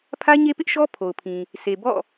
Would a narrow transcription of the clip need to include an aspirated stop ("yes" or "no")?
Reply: yes